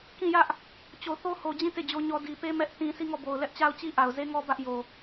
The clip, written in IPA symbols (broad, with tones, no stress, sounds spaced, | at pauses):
k ĩ˦˨ j ä˦ ʔ | t͡ɕ o˨ θ o˦ h o˨ d͡ʑ ĩ˦˨ t e˦˨ d͡ʑ o˦ ɲ ɔ˦ d i˨ p e˦ m ɛ˦ ʔ t ĩ˦ s i˦˨ ŋ ɔ˦˨ b o˨ ʊ̯ l ɛ˦ ʔ t͡ɕ a˦ ʊ̯ t͡ɕ i˦ ʔ a˨ ʊ̯ z e˦ ŋ ɔ˦ b ä˦ ʔ j o˨